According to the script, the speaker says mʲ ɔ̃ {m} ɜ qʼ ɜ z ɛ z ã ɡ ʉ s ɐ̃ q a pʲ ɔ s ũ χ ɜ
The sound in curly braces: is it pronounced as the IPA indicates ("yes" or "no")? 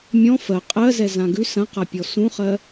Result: no